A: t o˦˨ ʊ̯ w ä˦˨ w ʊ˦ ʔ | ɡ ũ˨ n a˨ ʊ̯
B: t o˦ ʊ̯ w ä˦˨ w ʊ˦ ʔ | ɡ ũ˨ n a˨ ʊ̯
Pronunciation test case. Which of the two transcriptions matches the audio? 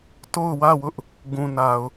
A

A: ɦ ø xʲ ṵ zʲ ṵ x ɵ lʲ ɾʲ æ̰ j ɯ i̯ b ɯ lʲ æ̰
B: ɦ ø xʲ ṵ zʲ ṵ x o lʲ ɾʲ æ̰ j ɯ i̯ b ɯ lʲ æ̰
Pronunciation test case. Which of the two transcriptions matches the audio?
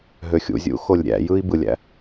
B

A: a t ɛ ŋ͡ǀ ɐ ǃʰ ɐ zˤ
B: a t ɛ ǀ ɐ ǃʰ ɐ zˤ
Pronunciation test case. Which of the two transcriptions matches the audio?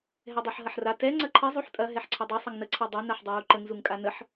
A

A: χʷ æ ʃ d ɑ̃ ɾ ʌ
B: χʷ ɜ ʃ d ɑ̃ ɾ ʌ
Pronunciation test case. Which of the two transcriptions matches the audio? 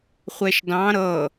A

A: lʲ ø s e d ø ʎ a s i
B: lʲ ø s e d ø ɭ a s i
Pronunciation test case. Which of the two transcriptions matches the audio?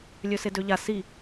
A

